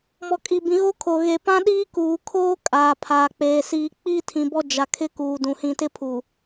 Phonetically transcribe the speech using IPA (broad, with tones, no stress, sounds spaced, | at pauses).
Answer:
m ɔ˨ kʼ i˨ b ĩ˨ ɣ o˦ kʰ o˨ ɣ e˨ p ã˦ ɗ iː˦ k uː˨ kʰ oː˦ kʼ aː˨ pʰ aː˨ k͡p eː˨ s iː˨ k͡p i˦ tʰ ĩ˨ b ɔ˦ d͡ʒ a˨ kʰ ɪ˦ k uː˨ d ũ˨ h ĩ˨ t ɪ˦ pʰ u˨